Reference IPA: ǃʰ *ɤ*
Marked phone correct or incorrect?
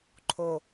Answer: incorrect